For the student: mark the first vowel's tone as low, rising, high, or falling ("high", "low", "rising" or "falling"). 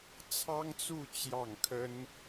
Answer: high